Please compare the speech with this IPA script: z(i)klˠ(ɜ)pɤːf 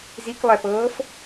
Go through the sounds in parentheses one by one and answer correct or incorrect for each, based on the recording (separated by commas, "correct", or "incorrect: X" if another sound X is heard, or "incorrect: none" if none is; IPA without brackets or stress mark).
correct, incorrect: ɛ